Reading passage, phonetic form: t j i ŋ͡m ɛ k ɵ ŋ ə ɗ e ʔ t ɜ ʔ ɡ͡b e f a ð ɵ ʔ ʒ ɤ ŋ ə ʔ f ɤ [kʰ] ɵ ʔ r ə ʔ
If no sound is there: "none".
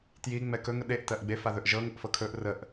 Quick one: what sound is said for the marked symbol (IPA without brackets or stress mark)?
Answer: kʰ